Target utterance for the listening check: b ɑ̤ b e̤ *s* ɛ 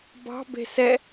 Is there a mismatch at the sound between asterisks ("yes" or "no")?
no